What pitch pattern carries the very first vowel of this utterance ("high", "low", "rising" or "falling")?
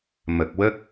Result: low